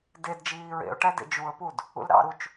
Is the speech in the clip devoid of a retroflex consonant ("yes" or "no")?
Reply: no